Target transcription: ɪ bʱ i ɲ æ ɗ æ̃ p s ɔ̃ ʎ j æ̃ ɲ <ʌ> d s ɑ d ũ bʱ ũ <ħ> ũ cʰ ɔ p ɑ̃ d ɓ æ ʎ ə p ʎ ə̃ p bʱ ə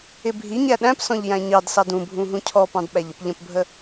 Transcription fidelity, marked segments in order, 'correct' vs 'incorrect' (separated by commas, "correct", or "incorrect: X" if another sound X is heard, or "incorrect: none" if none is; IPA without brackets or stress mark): incorrect: ɑ, incorrect: ɦ